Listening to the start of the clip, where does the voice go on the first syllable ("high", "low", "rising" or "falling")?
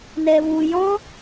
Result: low